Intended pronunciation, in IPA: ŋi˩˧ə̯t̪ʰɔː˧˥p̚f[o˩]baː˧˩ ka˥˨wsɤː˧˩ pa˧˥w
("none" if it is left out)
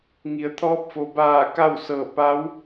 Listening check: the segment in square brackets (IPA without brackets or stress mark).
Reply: o˩